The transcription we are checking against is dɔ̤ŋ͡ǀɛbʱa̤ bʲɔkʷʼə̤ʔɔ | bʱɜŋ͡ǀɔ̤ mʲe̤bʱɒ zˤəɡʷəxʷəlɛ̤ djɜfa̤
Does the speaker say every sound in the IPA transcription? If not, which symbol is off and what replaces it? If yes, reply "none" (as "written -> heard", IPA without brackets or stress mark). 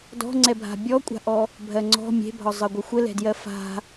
ə̤ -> a̤